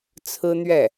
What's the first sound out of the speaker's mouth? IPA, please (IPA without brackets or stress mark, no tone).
t͡sʰ